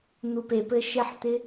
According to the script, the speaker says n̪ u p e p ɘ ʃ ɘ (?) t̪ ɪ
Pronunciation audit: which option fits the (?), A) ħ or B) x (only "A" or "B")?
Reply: A